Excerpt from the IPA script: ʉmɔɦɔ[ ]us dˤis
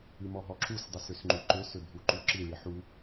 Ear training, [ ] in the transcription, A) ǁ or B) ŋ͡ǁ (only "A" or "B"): A